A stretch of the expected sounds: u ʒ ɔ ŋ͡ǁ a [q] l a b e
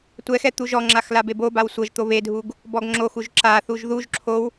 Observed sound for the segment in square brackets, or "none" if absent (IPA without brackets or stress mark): x